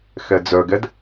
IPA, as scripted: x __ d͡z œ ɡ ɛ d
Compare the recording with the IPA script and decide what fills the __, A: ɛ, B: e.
A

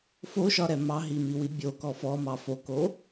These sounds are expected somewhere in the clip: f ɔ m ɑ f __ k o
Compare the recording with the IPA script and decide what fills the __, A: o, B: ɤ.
A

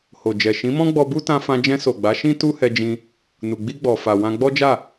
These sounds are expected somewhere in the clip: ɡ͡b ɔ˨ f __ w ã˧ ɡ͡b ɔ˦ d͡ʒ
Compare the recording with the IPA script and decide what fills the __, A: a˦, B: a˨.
B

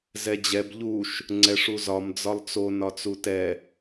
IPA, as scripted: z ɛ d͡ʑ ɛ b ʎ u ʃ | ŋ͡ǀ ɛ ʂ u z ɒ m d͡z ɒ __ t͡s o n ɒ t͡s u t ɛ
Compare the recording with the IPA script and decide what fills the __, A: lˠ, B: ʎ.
A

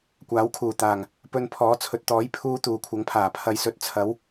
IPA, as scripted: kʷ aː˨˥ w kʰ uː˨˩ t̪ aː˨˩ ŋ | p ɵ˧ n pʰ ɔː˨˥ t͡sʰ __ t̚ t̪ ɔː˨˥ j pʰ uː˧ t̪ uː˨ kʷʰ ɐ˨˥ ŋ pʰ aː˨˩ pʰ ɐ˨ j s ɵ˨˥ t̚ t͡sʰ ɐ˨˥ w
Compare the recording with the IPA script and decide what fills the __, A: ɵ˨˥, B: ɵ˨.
B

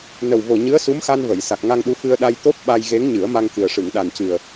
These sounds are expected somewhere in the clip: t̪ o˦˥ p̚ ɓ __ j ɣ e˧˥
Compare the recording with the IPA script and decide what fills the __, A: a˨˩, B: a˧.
B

